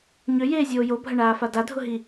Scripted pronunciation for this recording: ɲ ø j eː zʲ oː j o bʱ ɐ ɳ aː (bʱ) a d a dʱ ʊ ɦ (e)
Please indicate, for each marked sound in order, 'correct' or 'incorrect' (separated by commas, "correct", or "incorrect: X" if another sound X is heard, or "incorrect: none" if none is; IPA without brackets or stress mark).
incorrect: f, incorrect: i